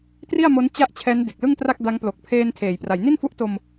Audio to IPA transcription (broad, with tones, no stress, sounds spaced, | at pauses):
t r i˥˩ a̯ m o˦˥ n t͡ɕ a˥˩ ʔ t͡ɕʰ ɛː˦˥ n d e˨˩ k̚ l ɯ˥˩ ŋ t r a˥˩ k̚ d a˦˥ ŋ p l o˨˩ k̚ pʰ eː˧ n tʰ eː˩˦ j p r a˩˦ j n i˥˩ n f u˦˥ ʔ t o˧ m